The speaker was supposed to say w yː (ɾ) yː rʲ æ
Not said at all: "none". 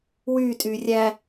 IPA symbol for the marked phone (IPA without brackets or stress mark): tʼ